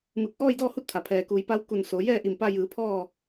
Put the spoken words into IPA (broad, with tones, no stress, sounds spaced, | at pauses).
m ɯː˧˩ k̚ ʔ ɔː˥˨ j d ɔː˥˨ h u˧˥ t̚ t̪ʰ a˩ pʰ ɛː˩ k uː˩˧ j p a˧˥ w k u˧˩ n s o˩˧ j ɛː˥˨ ʔ i˧˩ m p a˧ j ɯː˩˧ pʰ ɔː˥˨